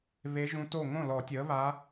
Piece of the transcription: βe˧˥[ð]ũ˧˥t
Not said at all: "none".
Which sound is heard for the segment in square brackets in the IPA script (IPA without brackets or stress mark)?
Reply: ʒ